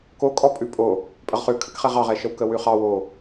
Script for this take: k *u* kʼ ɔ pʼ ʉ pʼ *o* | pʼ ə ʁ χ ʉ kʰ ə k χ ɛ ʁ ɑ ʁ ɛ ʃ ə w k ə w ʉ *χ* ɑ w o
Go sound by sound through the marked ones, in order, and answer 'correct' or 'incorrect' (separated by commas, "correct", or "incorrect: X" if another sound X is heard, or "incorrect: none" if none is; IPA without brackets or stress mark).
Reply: incorrect: o, correct, correct